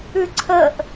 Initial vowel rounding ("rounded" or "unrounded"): rounded